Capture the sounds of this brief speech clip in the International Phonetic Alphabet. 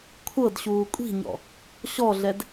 kʷʰɤd ɕuːkʷʼi̤ɲɔ̰ | ɕɔɮɛd

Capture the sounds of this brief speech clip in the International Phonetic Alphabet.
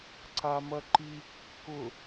ǀamɐǃi kːʊ

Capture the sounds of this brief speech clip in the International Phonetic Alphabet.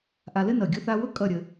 ʔa˧lɘ˥ nʌ˧˩ɡʲʊ˥θa˥ wʊ˥ kʼʌ˥˧ ɾʲə˧

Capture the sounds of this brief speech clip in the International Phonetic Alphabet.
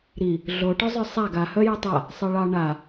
ɾi | ɮoʈœzˤœ sˤaɡ ahœ jɯtˤa | sˤɯɭɑ ɳa

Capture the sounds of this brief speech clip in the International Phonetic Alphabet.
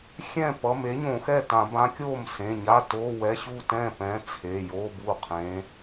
xʲɛ̃˥˩pʌ˩˧˩m e˨˥ɲõ˧˩˧ xɛ˥˩tã˧˩˧bã˨˥kʲoː˥˩m sẽ˩˧˩ɲa˧˥˧ toː˧˥˧wɛ˧˥˧ ɕu˥˩tɛ̃˥˩pɛ̃˨˥ t͡sʰe˩˧˩jo˧˥˧bu˥˩qʰẽ˨˥

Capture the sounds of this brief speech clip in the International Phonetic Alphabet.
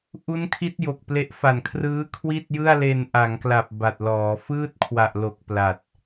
ʔu˦˥nkʰi˦˥t̚ jo˨˩k̚ple˦˥ʔ fa˨˩nkʰrɯː˦˥ kʰwi˥˩t̚jɯ˥˩a̯le˧n ʔa˩˦ŋkla˨˩p̚ ba˨˩t̚lɔː˩˦ fɯː˥˩t̚kʰwa˨˩ʔ lo˨˩k̚ pla˨˩t̚

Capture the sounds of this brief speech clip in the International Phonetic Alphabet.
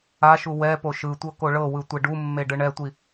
aʃu wɛ poʃɯtʷɤ koɭɤwɯ tʷeɖumːe ɖɯɳɛtʷi

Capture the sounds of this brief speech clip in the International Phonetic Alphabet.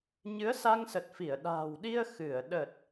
ɲɨ˨˦ə̯sa˧ŋsə˨˩t̚fi˧˩ə̯ ɗa̤ː˨˩wɗi˧ə̯ xɨ˧˩ə̯ɗə˨˩t̚

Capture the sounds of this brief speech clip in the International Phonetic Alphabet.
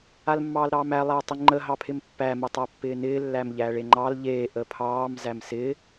almːɑːlɾɑːmæ lˠætˤɪŋ͡ǃə ɦɑpʰɪmpːæ mətˤapːɪːnɪː lːæmʎæːɭeŋ͡ǃɑl ʎeː ʔəpʰɑːm zæmsɪ

